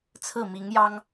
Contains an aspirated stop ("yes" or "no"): yes